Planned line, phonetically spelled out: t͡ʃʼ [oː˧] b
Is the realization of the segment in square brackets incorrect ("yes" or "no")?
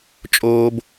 no